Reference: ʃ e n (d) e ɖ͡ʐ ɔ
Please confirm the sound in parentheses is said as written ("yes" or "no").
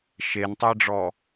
no